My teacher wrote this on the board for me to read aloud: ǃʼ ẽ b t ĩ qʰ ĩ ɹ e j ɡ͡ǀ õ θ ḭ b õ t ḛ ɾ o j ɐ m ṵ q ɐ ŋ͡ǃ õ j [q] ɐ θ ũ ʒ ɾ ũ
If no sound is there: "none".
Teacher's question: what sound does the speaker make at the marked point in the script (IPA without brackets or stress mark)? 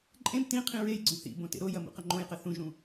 q